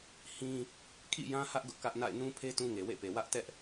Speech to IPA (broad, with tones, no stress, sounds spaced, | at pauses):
h ĩ˦ | kʰ ḭ˦˨ j ã˦ h ä˦ ʔ ɡ ʊ˦ ʔ k ä˦ ʔ n a̰˦˨ ɪ̯ n ũ˦ pʰ e˦ t ũ˦ ŋ e˨ w ḛ˦˨ p e˨ w ä˦ ʔ t ɛ˦ ʔ